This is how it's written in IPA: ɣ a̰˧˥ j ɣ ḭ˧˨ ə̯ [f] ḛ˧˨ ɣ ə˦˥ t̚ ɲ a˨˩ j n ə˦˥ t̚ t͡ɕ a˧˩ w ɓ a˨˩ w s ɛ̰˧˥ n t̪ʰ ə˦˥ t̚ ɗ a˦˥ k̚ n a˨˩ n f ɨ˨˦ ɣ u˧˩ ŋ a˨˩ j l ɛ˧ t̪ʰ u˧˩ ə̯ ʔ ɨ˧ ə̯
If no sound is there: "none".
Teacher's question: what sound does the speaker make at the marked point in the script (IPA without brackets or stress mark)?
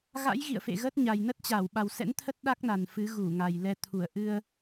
f